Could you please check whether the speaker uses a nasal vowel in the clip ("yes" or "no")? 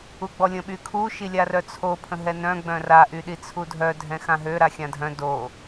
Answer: yes